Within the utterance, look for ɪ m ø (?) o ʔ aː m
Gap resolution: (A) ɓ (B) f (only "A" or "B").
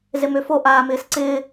B